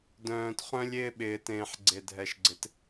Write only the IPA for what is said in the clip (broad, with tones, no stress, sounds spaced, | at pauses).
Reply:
d œ̃ː˨ t χ œ̃˦ lʲ ɪː˦ ɓ ɪː˨ t ẽː˨ ħ ɡ͡ǀ e˨ dʱ ɛ˨ ʃ ɡ͡ǀ ɪ˨˦ t